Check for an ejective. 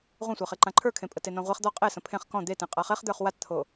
present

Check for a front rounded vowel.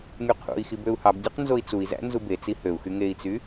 present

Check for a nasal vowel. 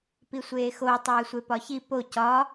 absent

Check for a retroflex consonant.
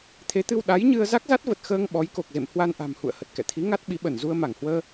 absent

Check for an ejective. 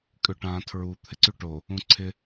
present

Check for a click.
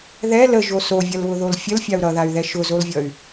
absent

